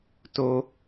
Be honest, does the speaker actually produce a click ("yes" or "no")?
no